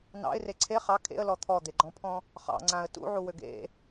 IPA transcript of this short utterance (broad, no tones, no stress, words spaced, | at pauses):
nɑ̰ɪ̯re ǀʰe χɑ kʰḛə̯lɔ t̪ʰɔd̪eɡ͡ǃɔ̃pʰɔ̃ | χɑ̰ŋ͡ǀãə̯ tṵʕuwøɡ ḛ